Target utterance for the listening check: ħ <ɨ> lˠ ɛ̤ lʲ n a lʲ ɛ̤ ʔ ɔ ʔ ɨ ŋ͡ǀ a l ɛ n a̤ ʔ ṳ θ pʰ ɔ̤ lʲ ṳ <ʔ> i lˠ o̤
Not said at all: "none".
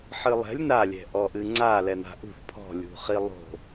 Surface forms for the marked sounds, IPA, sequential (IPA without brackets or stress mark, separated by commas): ɨ, χ